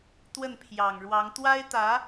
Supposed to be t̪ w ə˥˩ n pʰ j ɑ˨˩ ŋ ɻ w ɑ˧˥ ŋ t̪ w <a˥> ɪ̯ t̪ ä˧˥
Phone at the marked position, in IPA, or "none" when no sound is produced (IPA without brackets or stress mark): a˥